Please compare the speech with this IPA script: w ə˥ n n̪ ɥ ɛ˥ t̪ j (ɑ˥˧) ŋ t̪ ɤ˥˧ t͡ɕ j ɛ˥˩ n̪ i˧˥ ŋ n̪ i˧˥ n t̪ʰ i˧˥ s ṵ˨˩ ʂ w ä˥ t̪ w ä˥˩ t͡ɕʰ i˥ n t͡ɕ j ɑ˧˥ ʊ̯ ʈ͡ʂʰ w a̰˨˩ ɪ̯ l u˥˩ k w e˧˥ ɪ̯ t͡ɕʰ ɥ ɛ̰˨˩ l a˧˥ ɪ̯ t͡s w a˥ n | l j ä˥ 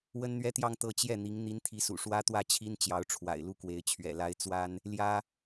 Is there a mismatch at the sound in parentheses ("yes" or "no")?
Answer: no